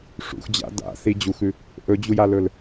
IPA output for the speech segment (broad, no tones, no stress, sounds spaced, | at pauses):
ʂ ṵ x d͡ʑ a̰ d a̰ θ i d͡ʑ u x ʉ | ʔ ɵ d͡ʑ u j a l ɵ l